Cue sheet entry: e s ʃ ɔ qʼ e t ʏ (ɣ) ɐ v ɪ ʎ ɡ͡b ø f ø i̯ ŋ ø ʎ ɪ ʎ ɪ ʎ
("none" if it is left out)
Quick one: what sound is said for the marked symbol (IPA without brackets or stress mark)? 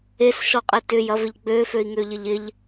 j